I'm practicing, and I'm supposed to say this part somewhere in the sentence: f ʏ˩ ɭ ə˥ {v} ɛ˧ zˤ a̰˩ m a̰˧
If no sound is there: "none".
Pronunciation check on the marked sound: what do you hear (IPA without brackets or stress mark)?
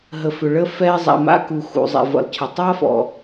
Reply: f